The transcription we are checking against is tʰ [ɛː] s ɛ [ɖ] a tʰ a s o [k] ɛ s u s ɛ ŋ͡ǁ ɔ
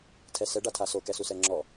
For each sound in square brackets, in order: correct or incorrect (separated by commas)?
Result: incorrect, correct, correct